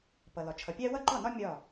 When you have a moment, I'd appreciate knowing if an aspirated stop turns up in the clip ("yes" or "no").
yes